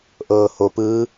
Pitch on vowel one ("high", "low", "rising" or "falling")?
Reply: low